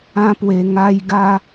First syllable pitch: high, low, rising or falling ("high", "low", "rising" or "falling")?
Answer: high